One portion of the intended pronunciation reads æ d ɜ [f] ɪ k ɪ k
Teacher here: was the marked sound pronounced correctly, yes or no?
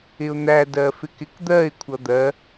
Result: yes